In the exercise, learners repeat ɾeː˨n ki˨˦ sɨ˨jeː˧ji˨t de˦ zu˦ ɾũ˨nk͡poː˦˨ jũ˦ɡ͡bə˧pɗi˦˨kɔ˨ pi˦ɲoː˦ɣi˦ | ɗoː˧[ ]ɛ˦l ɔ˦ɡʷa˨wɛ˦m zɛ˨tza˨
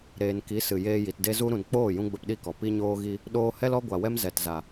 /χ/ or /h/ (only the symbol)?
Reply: h